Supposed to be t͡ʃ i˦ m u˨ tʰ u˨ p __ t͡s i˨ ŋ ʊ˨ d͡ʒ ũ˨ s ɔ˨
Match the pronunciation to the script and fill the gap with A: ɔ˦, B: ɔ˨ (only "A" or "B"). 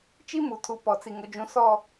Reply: B